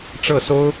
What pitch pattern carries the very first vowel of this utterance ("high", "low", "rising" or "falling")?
falling